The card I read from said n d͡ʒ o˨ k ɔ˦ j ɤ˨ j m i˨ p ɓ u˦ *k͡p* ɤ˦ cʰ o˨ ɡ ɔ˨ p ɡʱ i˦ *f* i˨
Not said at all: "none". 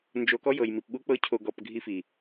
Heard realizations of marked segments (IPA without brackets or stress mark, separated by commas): k͡p, f